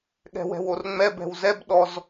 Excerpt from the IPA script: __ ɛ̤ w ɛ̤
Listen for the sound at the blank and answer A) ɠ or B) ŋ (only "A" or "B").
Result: A